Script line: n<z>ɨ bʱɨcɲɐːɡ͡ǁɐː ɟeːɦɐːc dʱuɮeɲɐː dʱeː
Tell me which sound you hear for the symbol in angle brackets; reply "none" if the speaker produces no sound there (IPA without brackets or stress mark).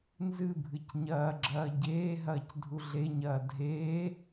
z